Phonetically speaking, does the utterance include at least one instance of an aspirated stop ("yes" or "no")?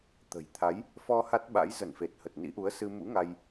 yes